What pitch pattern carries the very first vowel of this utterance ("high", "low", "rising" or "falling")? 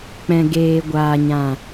low